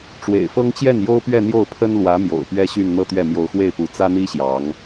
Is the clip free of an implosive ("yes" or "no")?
yes